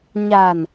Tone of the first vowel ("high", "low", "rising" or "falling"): low